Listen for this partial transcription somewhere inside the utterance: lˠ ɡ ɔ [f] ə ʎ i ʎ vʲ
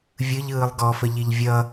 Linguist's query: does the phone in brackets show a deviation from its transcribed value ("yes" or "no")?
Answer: no